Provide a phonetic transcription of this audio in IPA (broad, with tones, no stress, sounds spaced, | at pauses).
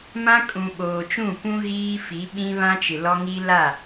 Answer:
m ã˦ kʼ ũ˨ ɓ oː˨ t͡ʃ ũ˦˨ p ũ˦ ɣ iː˦ f i˨˦ ɓ ĩ˦ β ã˦ t͡ʃ ɪ˨ l ɔ˦ ŋ i˦ l a˦˨